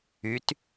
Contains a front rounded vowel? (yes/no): yes